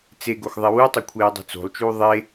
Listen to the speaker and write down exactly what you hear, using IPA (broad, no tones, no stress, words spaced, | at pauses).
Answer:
t͡seɡox ðˤewutˤe kʷʰeːdˤṳt͡so̤lˠt͡ʃuː ðˤe